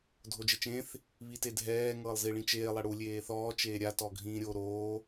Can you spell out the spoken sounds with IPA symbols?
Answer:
dʱ o d͡ʒ e t͡ʃ ẽ θ | β i t e dʱ ɛː ŋ ɤː lˠ z i ɭ ĩ t͡ʃ eː lˠ ɛ ɽ u lʲ eː θ ɔː t͡ʃ eː ɾʲ a t ɔ ɡʱ ĩː ɾʲ o ɾ oː

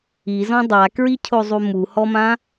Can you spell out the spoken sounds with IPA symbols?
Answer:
i z ɔ̃ dˤ a k ɹ i cʰ o zˤ u m u h ɔ m ã

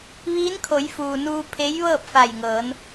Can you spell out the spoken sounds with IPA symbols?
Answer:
ʋ iː˧˥ n kʰ o˩˧ j f uː˩ n uː˧ pʰ e˧˥ j ʋ ɤː˥˨ p̚ f a˧˩ j ŋ ɤː˩˧ n

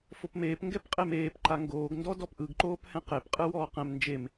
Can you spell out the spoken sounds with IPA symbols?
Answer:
f o p m eː p ŋ ɡ ɛ p qʼ e m eː p ǃ a ŋ ɡ oː ɡ n d ɔ d ɔ p ʔ ɯ ɡ ǃ oː p h ɛ̃ q e p qʼ ɯ w ɔː q ɛ̃ m n d͡ʒ e m

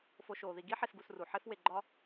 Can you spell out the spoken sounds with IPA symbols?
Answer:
f o˨ ʃ oː˩ ð i˨ ɡ i˦ ħ e˨ s ɡ u˨ s r u˩ ħ e˦ f w e˨ ɡ͡ǃ ɒ˦

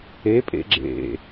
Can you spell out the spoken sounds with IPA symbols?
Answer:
e pʼ ḛ ɡ͡ǁ ḛ

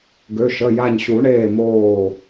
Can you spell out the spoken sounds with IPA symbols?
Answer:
ɡ ø˩˧˩ ʃ ə˩˧˩ j a˧˩ ɲ ɕ u˨˩˦ ɳ eː˧˩ m oː˧˩

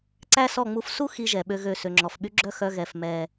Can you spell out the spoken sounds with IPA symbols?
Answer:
ǀ æ˦ s ɔ˦˨ ŋ͡m u˦ f s u˦ x i˦ ʒ ɛ˨ ɓ ø˦ ɣ ø˦˨ s ø˨ ŋ͡ǁ ɔ˨ f ɓ y˦ ɡ͡ǁ œ˦ x œ˦ ɣ ɛ˦˨ f m ɛ˦

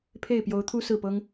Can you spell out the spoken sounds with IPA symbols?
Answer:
pʰ e˥˩ ɪ̯ p j o˧˥ ʊ̯ t̪ʰ u˥ s ɹ̩˥˩ p ɤ˥ ŋ

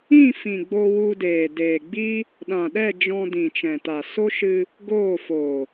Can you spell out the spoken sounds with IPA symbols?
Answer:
ĩ˦˨ f ĩ˨ ɡ͡b o˧ w u˧ d eː˨ d eː˨ ɡ͡b i˦ | ɗ ã˨ ɗ ɛ˦˨ d͡ʒ ɔ̃˧ d ĩ˨ t͡ʃ ɛ̃˨ t a˨ s o˦ ʃ ɨ˧ | ɡ oː˦˨ f o˨

